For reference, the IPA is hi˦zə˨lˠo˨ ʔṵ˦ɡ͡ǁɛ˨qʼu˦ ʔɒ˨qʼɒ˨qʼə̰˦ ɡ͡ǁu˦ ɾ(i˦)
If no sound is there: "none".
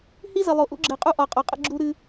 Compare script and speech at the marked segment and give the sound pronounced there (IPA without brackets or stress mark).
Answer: ɨ˦